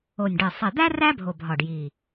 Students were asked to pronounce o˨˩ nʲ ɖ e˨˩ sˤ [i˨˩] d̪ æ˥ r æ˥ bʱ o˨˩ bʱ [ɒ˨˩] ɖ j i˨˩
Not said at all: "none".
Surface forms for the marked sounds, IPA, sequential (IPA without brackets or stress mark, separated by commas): i˨˩, ɒ˨˩